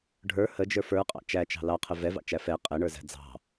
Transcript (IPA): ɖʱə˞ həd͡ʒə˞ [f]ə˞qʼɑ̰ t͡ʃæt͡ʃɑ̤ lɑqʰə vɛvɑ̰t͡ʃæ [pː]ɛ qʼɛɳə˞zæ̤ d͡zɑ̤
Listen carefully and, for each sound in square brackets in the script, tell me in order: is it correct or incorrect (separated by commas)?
correct, incorrect